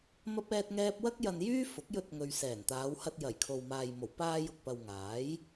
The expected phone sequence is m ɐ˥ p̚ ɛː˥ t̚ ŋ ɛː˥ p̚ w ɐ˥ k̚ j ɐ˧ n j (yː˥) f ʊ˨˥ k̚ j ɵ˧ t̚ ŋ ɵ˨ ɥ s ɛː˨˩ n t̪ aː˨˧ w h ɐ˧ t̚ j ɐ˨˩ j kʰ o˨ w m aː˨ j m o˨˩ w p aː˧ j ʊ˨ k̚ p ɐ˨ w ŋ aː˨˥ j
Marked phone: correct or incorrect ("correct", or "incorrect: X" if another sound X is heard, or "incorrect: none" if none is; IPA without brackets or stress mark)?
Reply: correct